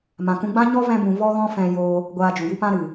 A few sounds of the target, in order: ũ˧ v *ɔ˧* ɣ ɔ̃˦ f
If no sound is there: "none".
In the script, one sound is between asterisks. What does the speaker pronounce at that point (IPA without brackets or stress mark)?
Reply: ɔ˦